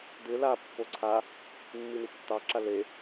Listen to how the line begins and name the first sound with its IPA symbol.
d̪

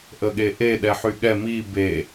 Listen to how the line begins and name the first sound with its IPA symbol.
ʔ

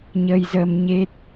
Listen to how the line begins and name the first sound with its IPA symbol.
ɲ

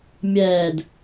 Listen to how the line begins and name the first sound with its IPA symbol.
mʲ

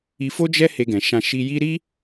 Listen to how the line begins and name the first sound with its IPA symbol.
i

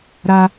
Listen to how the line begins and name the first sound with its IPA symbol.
ɾ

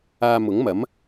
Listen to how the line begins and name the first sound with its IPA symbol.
aː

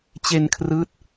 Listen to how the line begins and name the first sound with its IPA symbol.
t͡ɕ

